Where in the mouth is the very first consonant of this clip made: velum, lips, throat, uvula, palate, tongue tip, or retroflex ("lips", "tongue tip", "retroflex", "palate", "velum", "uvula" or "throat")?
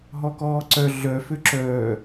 throat